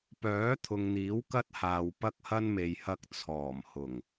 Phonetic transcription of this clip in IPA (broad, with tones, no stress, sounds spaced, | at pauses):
p œː˨˥ t̪ʰ ʊ˨ ŋ n̪ iː˨˥ w k ɐ˥ t̚ h aː˨ w p ɐ˥ k̚ h ɐ˥ n m e˨ j h ɐ˧ k̚ t͡sʰ ɔː˨˩ m h ʊ˨˩ ŋ